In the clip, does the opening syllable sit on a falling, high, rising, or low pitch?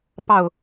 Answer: falling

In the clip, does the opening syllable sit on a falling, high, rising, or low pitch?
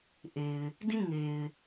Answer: low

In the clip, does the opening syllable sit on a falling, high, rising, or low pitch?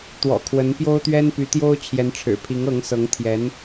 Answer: low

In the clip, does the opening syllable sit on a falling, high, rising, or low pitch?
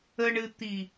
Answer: low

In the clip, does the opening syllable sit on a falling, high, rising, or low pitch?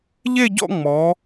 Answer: falling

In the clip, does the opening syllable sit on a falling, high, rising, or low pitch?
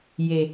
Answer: low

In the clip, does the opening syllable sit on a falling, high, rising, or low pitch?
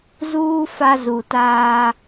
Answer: high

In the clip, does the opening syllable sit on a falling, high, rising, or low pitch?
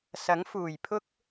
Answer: rising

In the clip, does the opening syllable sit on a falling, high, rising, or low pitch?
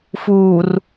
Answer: low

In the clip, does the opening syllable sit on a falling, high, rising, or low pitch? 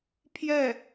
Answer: falling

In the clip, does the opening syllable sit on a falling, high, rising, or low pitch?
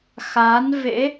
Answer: rising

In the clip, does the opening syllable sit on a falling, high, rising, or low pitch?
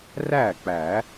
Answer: falling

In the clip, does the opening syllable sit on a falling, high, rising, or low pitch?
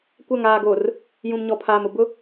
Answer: falling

